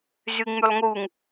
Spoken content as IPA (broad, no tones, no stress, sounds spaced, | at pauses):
z y ŋ͡m y lˠ ŋ u ŋ